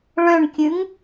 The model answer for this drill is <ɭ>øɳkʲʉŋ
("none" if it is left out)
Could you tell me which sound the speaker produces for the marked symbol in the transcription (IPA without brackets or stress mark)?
ɭ